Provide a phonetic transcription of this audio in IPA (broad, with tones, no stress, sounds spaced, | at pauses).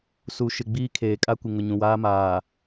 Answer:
s u˨ ʃ ɪ˨ ɡ͡b iː˦ kʰ eː˨ kʼ a˦ kʷ ɪ˨ ŋ ʊ˨ ɲ ũ˨ w aː˦ m aː˨